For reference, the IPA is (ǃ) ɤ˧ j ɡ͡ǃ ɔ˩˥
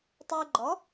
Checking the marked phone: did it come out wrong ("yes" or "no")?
yes